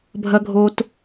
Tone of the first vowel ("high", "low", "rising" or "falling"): high